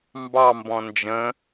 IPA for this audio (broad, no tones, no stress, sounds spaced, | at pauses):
m b ɑ m b ɔ̃ n d͡ʒ ə̃